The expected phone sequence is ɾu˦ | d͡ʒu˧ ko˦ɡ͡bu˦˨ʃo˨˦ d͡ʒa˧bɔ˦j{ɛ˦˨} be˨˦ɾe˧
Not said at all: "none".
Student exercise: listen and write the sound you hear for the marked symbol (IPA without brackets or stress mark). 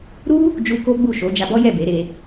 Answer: ɛ˦˨